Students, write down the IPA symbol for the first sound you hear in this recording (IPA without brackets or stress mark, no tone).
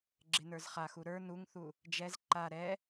ɡ͡ǁ